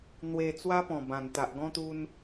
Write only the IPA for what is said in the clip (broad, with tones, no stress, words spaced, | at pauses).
n̪we˧ t͡swa˦pɔ̃˨˩bã˨˩n t̪a˨ʔɡɔ̃˦ t̪u˧n